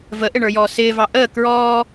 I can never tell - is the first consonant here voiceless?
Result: no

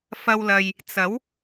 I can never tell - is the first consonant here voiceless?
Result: yes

